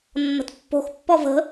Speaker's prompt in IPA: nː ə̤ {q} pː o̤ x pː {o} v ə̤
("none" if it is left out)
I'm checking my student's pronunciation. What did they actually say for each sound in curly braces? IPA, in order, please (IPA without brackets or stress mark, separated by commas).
t, ɔ